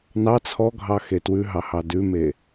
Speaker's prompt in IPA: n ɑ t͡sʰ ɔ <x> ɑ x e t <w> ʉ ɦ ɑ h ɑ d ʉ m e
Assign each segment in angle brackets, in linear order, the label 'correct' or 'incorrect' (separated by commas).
incorrect, correct